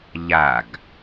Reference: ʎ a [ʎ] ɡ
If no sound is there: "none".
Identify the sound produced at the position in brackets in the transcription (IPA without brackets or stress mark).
none